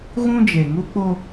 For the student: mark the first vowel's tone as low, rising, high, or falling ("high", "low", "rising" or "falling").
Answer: high